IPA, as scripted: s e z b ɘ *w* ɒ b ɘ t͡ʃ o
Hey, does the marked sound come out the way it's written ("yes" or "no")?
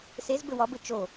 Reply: yes